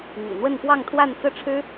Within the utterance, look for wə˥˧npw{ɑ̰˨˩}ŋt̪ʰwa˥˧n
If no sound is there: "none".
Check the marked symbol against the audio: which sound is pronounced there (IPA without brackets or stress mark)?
ɑ˥˧